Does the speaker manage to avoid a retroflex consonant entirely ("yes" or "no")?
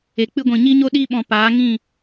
yes